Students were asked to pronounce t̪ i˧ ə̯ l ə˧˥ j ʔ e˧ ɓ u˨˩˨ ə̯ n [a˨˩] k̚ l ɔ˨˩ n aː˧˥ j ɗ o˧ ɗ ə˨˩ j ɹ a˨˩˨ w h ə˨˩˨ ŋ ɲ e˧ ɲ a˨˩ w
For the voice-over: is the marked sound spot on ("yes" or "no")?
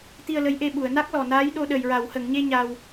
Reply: no